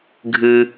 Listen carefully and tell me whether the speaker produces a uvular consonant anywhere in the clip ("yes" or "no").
no